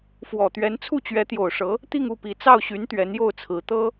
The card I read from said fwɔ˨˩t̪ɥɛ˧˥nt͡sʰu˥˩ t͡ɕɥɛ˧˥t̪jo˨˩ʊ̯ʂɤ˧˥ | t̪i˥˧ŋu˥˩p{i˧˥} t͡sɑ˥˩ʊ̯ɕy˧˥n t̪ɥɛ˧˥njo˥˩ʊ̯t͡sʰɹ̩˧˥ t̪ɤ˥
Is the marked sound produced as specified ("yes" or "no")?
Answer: yes